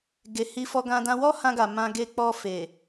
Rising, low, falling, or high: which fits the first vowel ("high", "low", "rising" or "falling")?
low